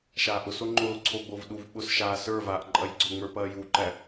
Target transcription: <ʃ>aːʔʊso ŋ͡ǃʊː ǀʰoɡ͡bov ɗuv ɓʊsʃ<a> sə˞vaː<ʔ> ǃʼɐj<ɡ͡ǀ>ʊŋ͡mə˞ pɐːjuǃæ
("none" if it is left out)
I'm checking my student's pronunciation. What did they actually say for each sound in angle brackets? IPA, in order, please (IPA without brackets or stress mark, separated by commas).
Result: ʃ, aː, ʔ, ɡ͡ǀ